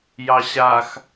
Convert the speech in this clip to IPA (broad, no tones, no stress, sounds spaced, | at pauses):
j ɑ ɕ a x